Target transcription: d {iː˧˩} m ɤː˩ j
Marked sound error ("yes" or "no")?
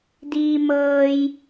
yes